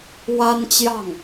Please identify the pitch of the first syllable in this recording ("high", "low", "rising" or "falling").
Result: high